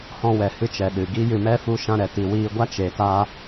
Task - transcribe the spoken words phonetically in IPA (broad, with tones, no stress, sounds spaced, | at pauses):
h ɔ̃˧ w ɛ˨ h ɨ˧ t͡ʃ ɛ˨ ɗ ɨ˨ ɡ i˦ j ɨ˧ m ɛ˦ f u˧ ʃ ã˧ ɾ ɛ˨ t i˨ w iː˧ ɡʷ a˦ t͡ʃ e˨ t a˧